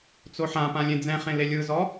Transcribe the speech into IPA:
t͡s o ħ ã p ã lʲ ẽ d͡z ɛ̃ χ ẽ l e lʲ ɯ z ɔ

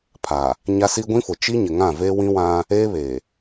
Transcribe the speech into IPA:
pʰ a˨ | ɲ a˦ s i˦ ɡʷ ĩ˦ f ʊ˨ t͡ʃ i˦ ɲ ɪ˨ ŋ ã˦˨ v e˦ w ĩ˦ w ã˦ | eː˦ β e˨

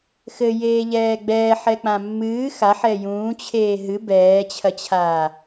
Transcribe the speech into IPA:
x ɘ j eː ʎ ɛː ɡ͡b ɛː ħ ɛ k͡p ã mː ɨː x a ħ ɛ j ũː t͡ɕʰ eː ɦ ɨ b ɛː t͡ɕʰ ɐ t͡ɕʰ aː

